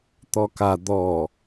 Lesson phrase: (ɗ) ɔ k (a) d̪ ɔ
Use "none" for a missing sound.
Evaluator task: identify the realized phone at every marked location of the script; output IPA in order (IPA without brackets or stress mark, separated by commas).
t̪, a